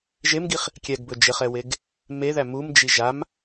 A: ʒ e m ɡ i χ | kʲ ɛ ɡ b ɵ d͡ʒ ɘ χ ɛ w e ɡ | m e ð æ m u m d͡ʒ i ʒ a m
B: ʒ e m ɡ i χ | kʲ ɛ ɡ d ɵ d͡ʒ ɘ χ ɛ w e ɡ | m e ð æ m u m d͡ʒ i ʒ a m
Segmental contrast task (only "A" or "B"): A